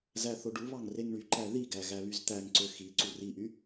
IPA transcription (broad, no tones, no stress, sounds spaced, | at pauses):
z æ θ o ɖ u β ɑ ŋ r e ŋ ɳ y ǃ æ ð i ɡ æ ɣ æ β y z t̪ æ ŋ ǀ ø x i ǀ u r i ʔ y